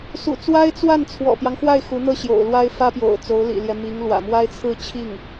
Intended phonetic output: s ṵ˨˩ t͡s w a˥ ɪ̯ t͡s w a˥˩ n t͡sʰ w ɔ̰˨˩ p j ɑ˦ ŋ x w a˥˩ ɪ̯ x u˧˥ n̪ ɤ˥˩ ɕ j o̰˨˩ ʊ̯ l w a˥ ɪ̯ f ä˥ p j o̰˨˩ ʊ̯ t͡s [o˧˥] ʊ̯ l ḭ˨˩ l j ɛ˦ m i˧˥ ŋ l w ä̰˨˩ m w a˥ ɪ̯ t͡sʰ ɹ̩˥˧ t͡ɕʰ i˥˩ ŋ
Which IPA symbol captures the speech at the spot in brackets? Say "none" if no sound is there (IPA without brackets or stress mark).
o˧˥